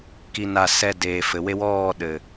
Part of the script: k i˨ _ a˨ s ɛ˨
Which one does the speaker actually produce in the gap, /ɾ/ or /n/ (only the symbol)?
n